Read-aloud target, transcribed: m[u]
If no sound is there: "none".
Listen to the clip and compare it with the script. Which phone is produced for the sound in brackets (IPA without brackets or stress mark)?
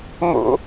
ṵ